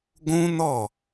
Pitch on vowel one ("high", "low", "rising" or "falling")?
high